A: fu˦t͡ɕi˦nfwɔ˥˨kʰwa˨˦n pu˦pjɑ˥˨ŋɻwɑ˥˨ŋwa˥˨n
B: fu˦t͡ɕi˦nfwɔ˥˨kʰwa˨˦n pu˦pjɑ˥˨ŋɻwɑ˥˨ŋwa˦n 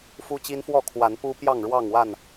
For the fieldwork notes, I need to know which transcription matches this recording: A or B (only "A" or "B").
A